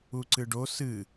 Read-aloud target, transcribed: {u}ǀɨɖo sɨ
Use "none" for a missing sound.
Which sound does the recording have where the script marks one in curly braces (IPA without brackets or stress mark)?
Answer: u